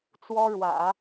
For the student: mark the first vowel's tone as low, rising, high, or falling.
high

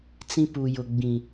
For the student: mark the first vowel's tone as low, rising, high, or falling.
high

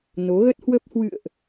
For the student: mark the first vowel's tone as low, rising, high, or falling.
rising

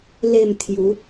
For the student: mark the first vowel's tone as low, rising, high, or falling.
falling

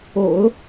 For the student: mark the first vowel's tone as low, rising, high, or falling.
low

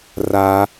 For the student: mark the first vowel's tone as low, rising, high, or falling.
high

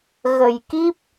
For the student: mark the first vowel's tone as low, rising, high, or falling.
low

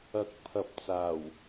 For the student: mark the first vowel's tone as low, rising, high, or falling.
rising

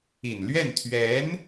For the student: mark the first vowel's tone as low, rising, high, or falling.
low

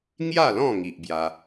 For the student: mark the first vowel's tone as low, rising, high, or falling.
falling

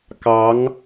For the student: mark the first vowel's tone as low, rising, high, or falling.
rising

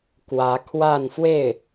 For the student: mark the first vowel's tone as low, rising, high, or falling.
rising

